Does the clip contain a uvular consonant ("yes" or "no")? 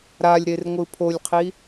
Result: yes